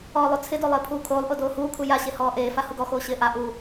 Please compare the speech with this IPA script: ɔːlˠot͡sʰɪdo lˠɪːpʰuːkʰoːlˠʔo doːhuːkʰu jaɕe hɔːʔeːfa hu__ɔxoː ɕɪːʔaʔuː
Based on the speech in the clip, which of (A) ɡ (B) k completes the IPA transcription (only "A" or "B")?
A